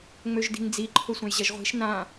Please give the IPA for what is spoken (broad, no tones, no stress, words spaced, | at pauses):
ŋ͡møʒdi̤ŋd͡zi ǃʰʊsʷɐ̃jʑɐʒʁʷi̤ʃ nã